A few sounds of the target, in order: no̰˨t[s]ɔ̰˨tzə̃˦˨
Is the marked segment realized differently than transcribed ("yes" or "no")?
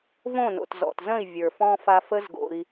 yes